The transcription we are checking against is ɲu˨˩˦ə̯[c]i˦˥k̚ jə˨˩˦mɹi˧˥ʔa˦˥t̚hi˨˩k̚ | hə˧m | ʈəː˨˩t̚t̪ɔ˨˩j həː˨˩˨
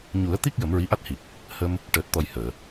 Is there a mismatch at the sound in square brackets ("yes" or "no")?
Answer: yes